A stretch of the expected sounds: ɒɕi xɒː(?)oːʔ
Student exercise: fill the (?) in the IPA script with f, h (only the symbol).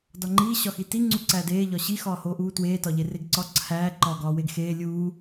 h